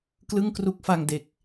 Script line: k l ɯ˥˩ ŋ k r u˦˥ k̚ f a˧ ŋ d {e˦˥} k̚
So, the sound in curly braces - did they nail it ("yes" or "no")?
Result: no